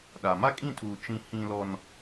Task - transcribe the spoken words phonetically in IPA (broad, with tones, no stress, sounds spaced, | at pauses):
ɗ a˨ m a˦ kʼ ĩ˦˨ tʰ uː˨ t͡ʃ ĩ˦ h ĩ˦ l ɔ˦ n